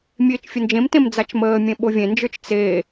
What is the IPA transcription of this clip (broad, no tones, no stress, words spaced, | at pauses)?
mʲeːt͡ʃfʲənd͡ʒẽmtẽm d͡zat͡ʃməːmʲẽ ɓovʲẽnd͡ʒə˞t͡ʃ t͡se